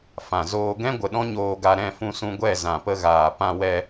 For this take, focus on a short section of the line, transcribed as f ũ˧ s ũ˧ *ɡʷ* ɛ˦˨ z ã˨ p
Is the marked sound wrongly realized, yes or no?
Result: no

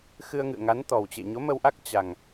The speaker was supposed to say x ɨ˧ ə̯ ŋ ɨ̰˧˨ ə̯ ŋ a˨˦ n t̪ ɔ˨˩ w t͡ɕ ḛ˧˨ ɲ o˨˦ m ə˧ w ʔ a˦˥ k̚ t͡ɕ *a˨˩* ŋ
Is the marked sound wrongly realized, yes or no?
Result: no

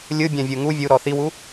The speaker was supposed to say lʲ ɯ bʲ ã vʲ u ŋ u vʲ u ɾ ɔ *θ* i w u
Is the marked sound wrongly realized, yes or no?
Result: no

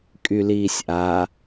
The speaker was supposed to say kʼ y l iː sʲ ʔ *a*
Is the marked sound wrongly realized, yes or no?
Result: no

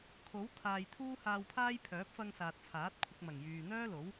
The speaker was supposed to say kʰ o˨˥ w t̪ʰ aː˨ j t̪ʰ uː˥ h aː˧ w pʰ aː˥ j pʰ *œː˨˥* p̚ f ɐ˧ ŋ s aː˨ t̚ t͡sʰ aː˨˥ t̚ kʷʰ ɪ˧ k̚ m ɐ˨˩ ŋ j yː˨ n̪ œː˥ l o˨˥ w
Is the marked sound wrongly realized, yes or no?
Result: no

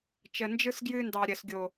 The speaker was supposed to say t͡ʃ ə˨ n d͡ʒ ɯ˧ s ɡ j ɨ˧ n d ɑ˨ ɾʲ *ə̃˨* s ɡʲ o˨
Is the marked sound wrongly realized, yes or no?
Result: yes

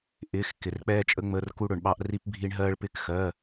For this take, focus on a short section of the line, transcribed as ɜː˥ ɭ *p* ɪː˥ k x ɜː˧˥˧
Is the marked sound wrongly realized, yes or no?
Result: no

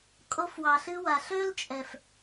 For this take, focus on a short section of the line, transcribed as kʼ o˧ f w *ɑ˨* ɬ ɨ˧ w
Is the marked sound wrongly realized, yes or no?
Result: no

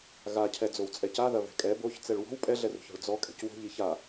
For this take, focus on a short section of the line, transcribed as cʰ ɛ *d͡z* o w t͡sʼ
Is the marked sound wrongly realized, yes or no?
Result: no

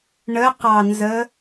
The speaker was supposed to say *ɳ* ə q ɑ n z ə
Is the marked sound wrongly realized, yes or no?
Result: no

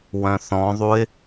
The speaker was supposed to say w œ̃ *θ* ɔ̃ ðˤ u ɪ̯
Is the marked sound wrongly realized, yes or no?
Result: no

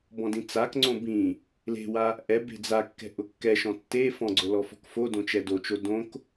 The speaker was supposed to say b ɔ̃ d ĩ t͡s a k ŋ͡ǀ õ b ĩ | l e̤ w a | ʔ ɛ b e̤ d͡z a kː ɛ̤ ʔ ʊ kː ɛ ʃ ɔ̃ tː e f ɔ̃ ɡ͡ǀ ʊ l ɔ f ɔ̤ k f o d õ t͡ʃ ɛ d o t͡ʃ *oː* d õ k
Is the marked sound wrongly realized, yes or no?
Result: yes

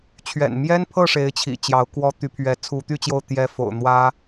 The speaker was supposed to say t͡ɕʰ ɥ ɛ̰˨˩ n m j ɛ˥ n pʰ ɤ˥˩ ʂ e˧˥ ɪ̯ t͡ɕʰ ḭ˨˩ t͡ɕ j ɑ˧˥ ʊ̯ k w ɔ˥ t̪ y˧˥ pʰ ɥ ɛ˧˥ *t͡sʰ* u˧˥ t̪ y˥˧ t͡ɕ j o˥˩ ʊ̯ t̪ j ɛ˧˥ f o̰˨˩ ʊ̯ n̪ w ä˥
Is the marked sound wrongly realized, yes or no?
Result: no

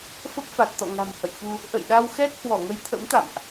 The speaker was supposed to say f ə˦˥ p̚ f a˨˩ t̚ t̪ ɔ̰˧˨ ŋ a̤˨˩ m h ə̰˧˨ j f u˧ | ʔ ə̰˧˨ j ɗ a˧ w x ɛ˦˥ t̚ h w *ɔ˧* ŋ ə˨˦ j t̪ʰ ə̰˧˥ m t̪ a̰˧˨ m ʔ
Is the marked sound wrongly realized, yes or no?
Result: yes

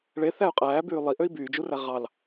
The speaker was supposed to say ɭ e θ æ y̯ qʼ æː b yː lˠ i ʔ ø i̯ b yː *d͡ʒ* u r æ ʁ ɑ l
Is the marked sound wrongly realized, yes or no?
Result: no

